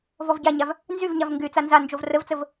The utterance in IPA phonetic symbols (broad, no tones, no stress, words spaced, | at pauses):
vɔvɟaɲav | nzyvɲav ŋɡyt͡sa nzand͡ʒov rəvt͡səv